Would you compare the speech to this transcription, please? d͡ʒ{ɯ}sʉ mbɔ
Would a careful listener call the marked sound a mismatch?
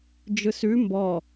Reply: no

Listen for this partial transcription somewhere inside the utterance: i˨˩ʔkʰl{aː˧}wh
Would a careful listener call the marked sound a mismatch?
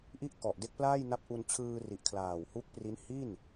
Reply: yes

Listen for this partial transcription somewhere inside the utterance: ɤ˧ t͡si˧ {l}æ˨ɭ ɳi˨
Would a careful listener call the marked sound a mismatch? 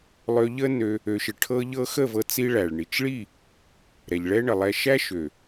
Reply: yes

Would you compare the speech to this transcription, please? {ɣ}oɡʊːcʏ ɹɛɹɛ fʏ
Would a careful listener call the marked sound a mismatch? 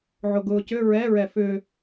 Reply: yes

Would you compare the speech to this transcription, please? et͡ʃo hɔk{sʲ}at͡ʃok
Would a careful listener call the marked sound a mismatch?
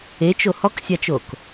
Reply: no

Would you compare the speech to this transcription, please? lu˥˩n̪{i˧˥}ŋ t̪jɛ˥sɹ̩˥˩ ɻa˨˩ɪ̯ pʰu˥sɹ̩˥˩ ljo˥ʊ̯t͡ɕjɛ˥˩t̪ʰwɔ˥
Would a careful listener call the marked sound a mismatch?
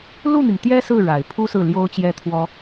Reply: yes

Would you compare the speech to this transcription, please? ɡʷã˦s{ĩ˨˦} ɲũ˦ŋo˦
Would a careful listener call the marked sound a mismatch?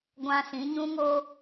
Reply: no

